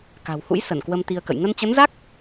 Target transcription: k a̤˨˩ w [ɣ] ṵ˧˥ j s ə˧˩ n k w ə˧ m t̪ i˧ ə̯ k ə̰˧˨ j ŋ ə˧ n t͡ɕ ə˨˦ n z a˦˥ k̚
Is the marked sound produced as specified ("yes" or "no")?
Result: no